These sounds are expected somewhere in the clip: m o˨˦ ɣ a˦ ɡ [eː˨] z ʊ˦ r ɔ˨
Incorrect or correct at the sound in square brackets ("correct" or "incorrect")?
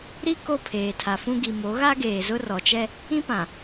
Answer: correct